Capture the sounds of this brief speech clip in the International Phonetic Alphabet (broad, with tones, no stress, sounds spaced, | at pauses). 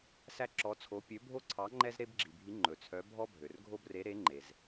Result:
s æ˦ ǁ ɔ˨˦ t͡sʰ o˨˦ pʲ ø˨˦ bʱ o˦ ǀʰ ɑ˨˦ ŋ͡ǃ ɛ˦ z ɾ e˦ b ɡ͡ǁ i˩ bʱ i˨˦ ŋ͡ǃ ɵ˩ t͡sʰ œ˨˦ bʱ ɔ˦ bʱ ø˩ r ɡʱ o˦ b r e˨˦ ɾ e˨˦ ŋ͡ǃ e˩ z